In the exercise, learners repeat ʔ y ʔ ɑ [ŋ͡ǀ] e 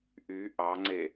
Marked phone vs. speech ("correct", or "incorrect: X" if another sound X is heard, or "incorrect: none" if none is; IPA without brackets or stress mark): correct